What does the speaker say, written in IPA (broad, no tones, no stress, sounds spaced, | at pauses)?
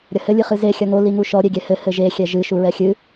ɾʲ ɐ h ɘ lʲ ɨ χ ɨ z e xʲ ɐ ŋ o l i ŋ u ʃ ɔ ɾʲ e ɡʲ ɛ h ɘ h ɘ ʒ e xʲ ɛ ʒ ɨ ʃ u ɹ ɛ xʲ ɨ